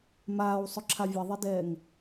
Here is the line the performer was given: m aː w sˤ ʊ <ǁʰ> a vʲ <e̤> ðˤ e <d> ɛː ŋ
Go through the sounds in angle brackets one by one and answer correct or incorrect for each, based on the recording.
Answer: correct, incorrect, correct

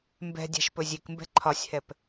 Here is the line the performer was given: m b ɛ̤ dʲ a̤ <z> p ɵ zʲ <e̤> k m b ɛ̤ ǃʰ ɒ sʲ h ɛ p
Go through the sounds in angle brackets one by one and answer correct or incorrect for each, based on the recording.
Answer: incorrect, incorrect

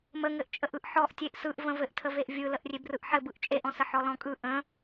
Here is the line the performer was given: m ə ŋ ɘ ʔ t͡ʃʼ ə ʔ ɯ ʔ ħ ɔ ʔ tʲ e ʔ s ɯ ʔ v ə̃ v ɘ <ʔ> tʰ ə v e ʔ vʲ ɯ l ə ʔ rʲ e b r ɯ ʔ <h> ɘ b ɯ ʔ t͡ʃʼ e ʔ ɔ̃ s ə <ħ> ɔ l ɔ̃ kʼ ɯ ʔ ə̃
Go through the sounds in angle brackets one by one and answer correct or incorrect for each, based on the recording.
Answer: correct, incorrect, correct

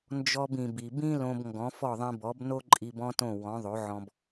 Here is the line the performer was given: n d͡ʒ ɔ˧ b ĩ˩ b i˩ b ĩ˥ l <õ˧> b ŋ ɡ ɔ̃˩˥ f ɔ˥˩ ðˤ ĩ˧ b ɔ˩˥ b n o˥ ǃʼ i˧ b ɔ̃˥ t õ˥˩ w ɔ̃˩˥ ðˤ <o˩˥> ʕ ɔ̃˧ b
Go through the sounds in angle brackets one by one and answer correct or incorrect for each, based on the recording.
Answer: correct, correct

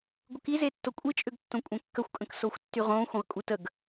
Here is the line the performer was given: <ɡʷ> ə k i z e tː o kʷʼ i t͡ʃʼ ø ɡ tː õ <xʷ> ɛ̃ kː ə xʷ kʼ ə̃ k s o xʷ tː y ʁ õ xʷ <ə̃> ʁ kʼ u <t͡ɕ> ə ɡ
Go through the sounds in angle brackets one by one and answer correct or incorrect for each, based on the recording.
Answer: correct, incorrect, correct, incorrect

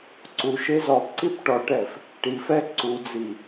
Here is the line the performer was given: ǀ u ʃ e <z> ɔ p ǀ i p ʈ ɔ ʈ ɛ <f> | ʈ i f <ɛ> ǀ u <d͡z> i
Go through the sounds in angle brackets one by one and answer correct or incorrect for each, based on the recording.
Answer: correct, correct, correct, correct

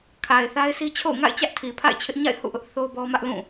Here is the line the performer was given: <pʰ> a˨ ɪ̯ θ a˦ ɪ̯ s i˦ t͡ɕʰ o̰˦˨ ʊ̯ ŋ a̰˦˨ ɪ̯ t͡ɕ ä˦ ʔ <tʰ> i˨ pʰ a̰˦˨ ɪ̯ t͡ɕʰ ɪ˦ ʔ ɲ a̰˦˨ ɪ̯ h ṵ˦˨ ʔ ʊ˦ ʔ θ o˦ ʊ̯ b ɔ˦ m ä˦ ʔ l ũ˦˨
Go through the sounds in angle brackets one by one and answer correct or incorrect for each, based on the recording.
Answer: incorrect, correct

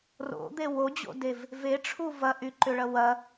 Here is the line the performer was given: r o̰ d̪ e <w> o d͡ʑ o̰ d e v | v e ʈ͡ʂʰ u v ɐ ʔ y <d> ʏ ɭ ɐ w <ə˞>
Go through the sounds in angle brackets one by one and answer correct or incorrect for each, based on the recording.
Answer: correct, incorrect, incorrect

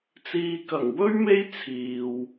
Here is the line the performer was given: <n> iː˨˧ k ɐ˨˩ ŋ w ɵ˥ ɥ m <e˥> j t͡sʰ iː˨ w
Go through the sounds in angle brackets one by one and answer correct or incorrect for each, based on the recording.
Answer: incorrect, correct

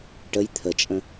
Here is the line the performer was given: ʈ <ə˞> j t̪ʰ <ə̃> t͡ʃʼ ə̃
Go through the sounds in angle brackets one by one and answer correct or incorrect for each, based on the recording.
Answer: incorrect, incorrect

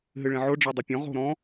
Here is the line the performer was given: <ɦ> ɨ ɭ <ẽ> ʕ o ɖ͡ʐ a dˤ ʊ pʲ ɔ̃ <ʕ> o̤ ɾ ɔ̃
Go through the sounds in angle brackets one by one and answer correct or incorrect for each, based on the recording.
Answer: correct, correct, incorrect

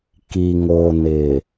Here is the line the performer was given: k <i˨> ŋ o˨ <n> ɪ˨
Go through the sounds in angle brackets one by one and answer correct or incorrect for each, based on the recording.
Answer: correct, correct

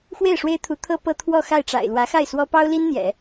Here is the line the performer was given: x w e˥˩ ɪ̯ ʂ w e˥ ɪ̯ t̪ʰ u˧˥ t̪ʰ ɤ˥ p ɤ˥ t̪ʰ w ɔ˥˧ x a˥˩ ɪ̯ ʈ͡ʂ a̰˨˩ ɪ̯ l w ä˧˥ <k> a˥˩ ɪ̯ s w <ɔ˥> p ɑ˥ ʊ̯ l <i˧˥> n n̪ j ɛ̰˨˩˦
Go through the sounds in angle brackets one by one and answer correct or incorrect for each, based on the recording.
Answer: incorrect, correct, incorrect

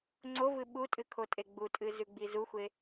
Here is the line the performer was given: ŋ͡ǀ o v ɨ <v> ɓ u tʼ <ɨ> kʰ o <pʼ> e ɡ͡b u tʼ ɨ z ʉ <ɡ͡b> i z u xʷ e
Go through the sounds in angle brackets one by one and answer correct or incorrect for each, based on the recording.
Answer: incorrect, correct, incorrect, correct

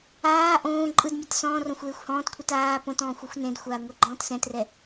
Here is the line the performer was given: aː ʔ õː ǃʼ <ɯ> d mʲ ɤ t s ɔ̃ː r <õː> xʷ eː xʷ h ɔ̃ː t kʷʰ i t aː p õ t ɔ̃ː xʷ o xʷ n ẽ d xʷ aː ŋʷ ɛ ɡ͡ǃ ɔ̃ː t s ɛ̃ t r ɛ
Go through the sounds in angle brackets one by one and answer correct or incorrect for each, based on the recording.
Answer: correct, incorrect

